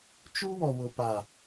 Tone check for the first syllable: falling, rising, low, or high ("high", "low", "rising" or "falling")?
high